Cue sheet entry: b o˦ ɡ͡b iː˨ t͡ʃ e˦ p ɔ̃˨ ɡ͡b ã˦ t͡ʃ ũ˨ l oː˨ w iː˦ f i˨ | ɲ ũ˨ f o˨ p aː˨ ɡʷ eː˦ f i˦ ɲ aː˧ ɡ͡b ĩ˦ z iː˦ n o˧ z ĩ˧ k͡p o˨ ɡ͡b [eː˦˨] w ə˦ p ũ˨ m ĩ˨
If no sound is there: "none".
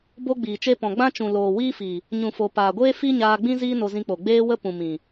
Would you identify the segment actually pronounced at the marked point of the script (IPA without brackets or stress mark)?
eː˦